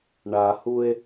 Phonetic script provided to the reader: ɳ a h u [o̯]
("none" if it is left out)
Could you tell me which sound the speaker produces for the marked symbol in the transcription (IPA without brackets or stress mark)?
e̯